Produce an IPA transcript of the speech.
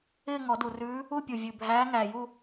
ɪː˥˧ŋɔ˨˩˦du˨˩rʉː˧˥ | u˥˧pʲu˨˩ vʲʉ˨˩bʱæː˧˥ ŋæ˨˩ju˥˧

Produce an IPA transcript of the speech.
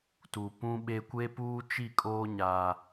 tu˨pũ˦ɓe˦ kʷe˦puː˦t͡ʃi˦˨kʼoː˦ ɲa˦

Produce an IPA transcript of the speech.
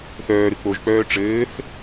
θœːɾɨ k͡poʒk͡pœː ʈ͡ʂɘːθ

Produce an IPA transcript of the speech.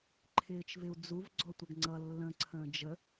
ǃʰɪːt͡ʃvɪu̯d͡zuv ɡ͡ǀɔtʷʌɡŋ͡ǀʌ lːə̃ ǀʰə̃ːd͡ʒə

